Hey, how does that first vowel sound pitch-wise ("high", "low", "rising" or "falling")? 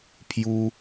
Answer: high